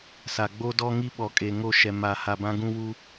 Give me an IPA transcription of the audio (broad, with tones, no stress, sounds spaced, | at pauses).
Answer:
s a˨ ɡ͡b o˦ d ɔ˦ ŋ i˦ ɓ ɔ˨ kʼ e˨ ŋ o˦˨ ʃ ɛ˨ m a˨ h a˨ b ã˦ ɡ ũ˦ w u˦